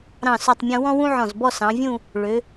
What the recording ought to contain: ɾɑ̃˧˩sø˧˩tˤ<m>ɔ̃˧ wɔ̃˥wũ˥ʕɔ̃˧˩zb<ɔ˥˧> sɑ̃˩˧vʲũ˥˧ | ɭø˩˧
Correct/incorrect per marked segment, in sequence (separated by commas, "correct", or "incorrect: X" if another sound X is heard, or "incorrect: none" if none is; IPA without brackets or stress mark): incorrect: mʲ, correct